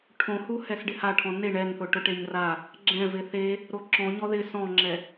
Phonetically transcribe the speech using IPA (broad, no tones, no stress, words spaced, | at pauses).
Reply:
ʈʰõhuhɛs ɖɪhaʈʰɔ̃ neɳ ɛnθʊ ʈʊʈeɲra | ɡ͡ǁɛ̃ vɪθe | ɾoǁɔ̃ ɲɔðɪ sɔ̃ŋ͡ǁɛ